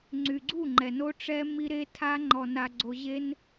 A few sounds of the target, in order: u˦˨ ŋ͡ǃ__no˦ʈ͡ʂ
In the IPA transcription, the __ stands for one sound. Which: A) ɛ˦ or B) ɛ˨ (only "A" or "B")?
B